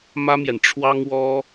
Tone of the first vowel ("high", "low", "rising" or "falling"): high